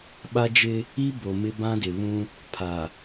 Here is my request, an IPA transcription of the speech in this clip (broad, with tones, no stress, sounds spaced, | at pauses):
ɓ a˦ d͡ʒ ɪ˦ | i˦ b o˨ m ɪ˦ b ã˦ d ɪ˨ β ũ˦ | pʰ a˨